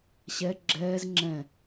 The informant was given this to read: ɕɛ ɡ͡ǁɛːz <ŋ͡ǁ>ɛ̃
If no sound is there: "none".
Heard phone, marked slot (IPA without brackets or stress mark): ŋ͡ǁ